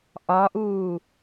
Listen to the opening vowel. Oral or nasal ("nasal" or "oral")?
oral